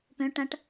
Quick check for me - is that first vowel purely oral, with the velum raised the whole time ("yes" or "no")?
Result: no